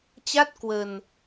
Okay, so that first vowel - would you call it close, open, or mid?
open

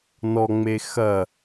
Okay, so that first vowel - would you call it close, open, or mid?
mid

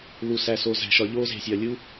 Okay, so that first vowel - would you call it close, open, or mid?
close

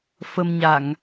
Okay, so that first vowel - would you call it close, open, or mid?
mid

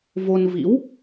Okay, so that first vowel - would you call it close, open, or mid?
mid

